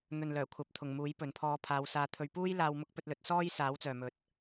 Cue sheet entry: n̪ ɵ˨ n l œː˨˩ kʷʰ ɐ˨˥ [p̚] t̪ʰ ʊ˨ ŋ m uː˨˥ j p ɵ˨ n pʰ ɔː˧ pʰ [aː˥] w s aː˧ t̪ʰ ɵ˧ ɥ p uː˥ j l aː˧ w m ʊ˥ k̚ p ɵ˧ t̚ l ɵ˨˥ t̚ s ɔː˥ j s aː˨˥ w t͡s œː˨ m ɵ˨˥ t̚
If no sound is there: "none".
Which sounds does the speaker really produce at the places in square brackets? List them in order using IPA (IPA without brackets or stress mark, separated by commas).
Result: p̚, aː˨˧